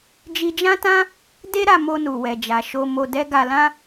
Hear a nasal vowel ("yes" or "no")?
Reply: yes